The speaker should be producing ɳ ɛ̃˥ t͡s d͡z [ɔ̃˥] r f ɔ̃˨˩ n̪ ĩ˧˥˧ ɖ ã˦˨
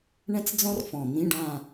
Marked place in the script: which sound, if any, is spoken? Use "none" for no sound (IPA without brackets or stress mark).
ɔ̃˥